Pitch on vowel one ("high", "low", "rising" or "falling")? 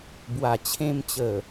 low